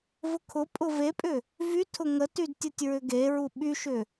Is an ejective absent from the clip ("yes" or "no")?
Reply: no